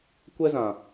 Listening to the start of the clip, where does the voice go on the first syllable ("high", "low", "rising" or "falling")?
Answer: high